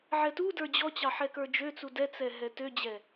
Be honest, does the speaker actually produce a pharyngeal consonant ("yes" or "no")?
yes